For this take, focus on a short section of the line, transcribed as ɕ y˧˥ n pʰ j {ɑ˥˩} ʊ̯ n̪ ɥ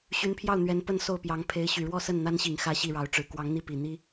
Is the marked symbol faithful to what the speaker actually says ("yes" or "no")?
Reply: yes